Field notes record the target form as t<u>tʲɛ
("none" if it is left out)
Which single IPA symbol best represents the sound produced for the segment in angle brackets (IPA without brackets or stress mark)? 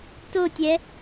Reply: o